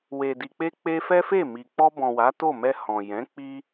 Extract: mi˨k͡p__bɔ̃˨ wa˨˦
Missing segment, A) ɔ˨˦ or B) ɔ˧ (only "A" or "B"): B